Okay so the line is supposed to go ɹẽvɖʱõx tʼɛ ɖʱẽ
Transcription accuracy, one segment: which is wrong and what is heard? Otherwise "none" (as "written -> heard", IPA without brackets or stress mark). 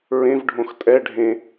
none